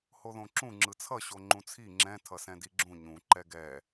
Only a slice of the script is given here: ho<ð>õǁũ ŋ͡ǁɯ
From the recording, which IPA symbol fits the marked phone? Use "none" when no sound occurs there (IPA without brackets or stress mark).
ð